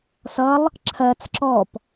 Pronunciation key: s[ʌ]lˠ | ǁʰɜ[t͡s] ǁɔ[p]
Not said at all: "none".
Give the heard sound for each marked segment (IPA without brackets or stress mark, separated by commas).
ʌ, t͡s, p